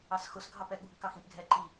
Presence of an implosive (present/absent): present